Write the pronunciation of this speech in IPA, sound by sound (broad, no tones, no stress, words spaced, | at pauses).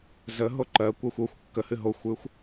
zəɦo ǃɜkʷɜxʷ oxʷ kːəhɨ ɦoxʷʉxʷ